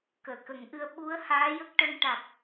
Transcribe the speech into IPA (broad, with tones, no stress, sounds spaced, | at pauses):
k əː˨˩˨ k ə˨˩˦ ŋ ʔ ɨ˧ ə̯ ɓ u˧˥ ə̯ h aː˧˥ j ə˦˥ k̚ ʈ ə˧ ŋ ʈ a˨˩ k̚